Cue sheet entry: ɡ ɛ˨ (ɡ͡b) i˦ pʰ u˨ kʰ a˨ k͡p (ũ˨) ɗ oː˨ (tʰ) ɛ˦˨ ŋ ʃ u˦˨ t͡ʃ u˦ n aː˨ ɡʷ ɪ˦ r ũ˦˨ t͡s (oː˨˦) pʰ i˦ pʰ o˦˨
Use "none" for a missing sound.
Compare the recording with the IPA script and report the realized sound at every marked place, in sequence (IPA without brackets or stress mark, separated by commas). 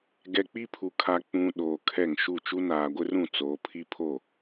k͡p, ũ˨, kʰ, oː˨